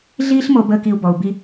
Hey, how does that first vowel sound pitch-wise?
high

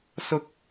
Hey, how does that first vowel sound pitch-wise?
high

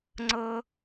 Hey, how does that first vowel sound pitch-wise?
high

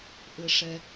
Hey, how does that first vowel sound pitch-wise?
low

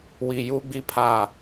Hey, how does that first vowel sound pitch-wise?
low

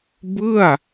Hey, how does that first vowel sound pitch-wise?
falling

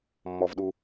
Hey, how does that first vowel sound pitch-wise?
low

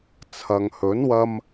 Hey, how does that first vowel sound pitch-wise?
low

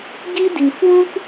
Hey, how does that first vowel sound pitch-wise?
high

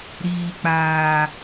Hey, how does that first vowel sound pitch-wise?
low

